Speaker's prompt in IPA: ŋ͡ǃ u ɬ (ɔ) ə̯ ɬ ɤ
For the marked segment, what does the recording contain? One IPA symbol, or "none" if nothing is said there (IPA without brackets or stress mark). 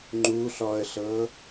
ɔ